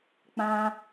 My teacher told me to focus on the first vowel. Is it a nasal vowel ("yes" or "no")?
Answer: yes